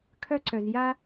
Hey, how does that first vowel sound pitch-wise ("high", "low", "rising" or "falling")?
high